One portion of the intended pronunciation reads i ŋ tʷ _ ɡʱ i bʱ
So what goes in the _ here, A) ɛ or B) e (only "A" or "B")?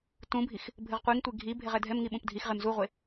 B